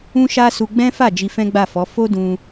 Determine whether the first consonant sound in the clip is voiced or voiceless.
voiceless